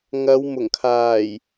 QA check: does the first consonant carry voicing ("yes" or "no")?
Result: yes